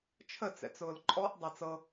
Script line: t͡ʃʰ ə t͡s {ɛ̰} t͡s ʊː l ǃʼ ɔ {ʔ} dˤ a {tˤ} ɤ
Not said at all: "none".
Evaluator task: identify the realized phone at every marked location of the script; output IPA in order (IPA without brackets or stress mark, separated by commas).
ɛ̰, ʔ, t͡s